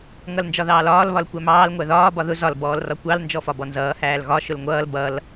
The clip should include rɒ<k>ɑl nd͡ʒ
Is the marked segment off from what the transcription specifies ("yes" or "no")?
yes